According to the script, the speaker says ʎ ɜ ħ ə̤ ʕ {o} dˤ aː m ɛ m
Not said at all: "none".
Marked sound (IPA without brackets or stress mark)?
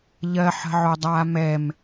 o